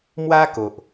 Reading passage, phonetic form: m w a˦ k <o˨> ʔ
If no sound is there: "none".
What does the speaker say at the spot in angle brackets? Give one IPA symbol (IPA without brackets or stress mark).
o˨